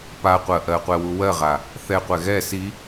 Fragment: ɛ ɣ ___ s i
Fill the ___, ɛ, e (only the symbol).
ɛ